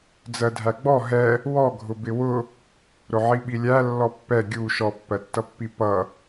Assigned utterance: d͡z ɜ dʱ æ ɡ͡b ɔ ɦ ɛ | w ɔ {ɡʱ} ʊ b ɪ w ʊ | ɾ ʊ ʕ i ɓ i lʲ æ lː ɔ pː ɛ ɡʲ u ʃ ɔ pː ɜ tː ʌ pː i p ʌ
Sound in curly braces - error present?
no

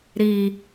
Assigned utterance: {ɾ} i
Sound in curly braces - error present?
no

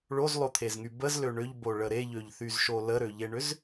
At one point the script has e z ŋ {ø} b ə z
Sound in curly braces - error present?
yes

